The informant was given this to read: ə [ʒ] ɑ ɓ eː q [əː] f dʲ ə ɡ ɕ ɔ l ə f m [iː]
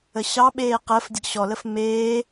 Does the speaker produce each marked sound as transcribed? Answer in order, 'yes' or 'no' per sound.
no, yes, no

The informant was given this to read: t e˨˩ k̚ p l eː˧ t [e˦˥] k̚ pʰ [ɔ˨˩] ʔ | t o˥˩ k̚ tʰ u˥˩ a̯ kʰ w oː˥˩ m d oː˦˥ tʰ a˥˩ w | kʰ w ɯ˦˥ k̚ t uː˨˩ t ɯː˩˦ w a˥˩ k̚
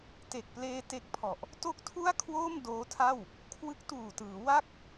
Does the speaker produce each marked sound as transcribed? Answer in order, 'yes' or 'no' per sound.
yes, yes

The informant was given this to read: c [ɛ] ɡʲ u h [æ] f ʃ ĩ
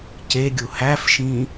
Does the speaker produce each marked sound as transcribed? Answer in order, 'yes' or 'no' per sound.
no, yes

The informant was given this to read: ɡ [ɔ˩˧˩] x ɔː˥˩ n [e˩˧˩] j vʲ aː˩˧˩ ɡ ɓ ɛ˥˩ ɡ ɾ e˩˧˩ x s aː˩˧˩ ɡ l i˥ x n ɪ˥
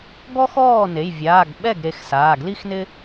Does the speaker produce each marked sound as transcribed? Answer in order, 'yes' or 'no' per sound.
no, yes

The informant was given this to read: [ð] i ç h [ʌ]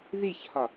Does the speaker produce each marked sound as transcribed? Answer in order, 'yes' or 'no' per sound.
yes, no

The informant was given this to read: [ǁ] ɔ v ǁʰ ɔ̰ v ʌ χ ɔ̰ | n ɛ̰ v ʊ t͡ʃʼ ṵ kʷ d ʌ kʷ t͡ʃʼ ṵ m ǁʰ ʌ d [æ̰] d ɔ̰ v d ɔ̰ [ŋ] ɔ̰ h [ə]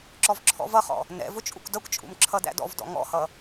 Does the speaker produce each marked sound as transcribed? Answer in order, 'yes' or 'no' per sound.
yes, yes, yes, no

